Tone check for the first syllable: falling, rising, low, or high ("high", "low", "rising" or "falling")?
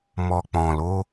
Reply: low